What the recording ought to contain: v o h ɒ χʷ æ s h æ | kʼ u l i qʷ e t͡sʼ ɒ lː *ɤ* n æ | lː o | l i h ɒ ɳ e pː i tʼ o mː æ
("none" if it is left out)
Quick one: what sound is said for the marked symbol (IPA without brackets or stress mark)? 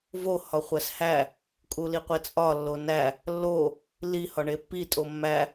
o